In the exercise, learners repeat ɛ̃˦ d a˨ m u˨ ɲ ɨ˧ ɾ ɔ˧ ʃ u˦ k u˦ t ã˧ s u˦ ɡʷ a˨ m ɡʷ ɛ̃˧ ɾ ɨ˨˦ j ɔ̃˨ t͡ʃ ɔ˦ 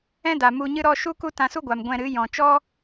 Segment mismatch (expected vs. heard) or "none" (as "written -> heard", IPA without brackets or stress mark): none